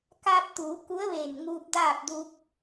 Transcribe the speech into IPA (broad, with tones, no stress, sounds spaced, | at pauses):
k aː˧ p̚ t̪ uː˩˧ k u˧˥ ə̯ ʋ eː˧˩ n ŋ uː˧ p̚ d aː˥˨ p̚ d u˧ k̚